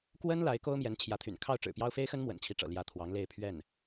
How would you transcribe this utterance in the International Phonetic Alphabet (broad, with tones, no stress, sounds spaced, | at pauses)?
k w ə˥ n l a˧˥ ɪ̯ k o˥ ʊ̯ m j ɛ˧˥ n t͡ɕʰ j ä˧˥ t̪ʰ y̰˨˩ n kʰ ɑ˥˩ ʊ̯ ʈ͡ʂ ɻ̩˨˩ p j ɑ˥ ʊ̯ f e˥ ɪ̯ x ə˥ n m w ə̰˨˩ n t͡ɕʰ i˧˥ ʈ͡ʂ ɤ̰˨˩ l j ä˧˥ t̪ʰ w ɑ˧˥ ŋ l e˥˧ ɪ̯ pʰ ɥ ɛ˥˩ n